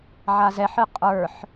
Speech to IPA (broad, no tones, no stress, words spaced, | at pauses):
ʕazɛħɨ qʼə˞ħ